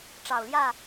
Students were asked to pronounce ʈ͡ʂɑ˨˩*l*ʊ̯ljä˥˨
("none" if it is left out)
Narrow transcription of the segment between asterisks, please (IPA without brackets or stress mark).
none